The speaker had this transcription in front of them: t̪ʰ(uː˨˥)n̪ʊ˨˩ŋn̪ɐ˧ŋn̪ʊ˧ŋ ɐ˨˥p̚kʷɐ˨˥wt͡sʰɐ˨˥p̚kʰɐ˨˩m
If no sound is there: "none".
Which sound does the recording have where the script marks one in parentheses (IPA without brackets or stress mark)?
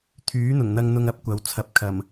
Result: yː˨˥